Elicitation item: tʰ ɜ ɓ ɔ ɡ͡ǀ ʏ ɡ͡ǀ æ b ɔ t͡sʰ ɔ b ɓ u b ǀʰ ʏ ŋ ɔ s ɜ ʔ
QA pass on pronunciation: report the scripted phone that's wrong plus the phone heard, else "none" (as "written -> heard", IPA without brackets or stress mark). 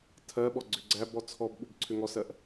none